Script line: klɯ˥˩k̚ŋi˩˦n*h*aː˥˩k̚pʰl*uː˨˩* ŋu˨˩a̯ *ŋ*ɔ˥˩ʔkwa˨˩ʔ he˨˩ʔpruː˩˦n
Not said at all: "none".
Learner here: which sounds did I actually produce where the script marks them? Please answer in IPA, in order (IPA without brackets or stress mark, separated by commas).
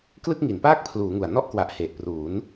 p, uː˩˦, n